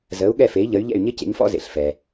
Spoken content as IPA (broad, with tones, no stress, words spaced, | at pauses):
zəː˩˥u̯ ɠɛ˥˩fe˩˥i̯ʎə˩˥y̯ ʎɛ̰˥˩y̯ɲɪ˥cḛ˩˥ɲfɔ̰˥ zḛ˩ɬfɛ˩